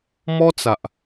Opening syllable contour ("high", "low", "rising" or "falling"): high